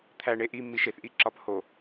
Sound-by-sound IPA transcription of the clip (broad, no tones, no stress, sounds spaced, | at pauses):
t̪ʰ æ ɳ e ʔ i mː i ʃ e θ ʔ i ǁ ɒ p h o